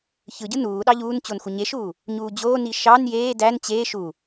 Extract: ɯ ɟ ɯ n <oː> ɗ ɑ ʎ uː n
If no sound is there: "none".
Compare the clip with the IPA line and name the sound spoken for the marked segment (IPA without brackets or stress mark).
uː